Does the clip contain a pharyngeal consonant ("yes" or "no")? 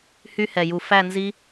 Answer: no